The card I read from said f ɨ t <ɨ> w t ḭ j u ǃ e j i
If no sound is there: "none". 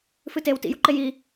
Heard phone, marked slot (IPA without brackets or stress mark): e